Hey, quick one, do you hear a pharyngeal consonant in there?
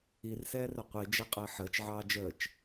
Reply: yes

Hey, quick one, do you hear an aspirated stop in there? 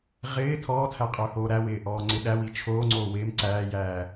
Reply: yes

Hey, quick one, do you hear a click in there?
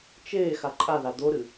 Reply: yes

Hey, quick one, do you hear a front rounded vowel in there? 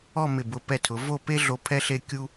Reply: no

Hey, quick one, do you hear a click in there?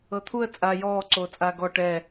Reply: yes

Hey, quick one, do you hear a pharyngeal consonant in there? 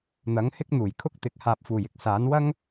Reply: no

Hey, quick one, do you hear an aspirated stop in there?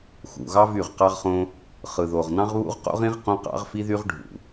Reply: no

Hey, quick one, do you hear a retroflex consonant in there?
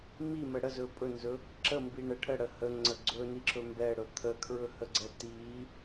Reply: yes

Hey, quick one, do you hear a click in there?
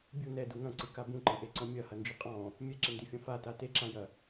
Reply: yes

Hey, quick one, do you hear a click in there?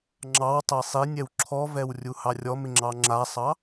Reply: yes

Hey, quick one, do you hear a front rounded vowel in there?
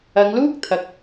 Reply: no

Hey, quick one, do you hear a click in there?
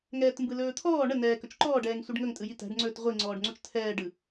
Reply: yes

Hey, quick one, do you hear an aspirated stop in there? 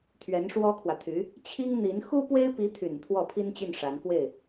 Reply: yes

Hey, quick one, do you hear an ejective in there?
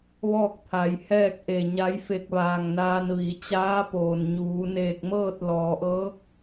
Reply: no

